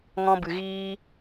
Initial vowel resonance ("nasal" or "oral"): nasal